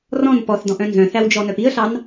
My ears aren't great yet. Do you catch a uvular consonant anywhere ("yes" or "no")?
no